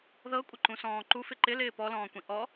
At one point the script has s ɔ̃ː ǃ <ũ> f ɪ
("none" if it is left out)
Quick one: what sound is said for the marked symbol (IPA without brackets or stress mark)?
u